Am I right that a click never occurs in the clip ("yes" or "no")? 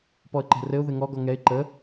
no